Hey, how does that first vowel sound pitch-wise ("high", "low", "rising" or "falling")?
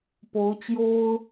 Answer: rising